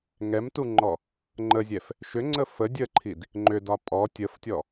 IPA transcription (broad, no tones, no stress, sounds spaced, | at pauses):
ŋ ɛ m t u ŋ͡ǃ ɔ | ŋ͡ǃ ə zʲ ɛ f | ʃ ʏ ŋ͡ǀ ə f ə dʲ ə ǃʰ i d | ŋ͡ǃ ʏ d ɒ pʼ ɔ tʲ ə f tʲ ɔ